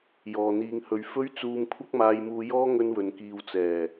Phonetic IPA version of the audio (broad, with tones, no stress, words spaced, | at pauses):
jɔː˨n̪iː˧ŋhɵ˧ɥ fɵ˥ɥt͡suː˧m kʷʰɐ˥k̚maː˧jmuː˧jɔː˥ ŋɵ˥nwɵ˨˧nkiː˧w t͡sɛː˨˩